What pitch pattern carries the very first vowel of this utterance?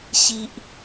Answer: low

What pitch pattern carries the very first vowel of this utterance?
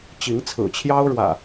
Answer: rising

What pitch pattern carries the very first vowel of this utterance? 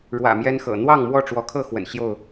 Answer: low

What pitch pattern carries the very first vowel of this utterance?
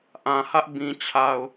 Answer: low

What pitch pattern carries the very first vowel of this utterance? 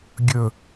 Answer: low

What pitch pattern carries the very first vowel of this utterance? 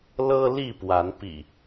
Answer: high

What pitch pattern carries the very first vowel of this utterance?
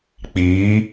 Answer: rising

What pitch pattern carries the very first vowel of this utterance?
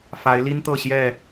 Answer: rising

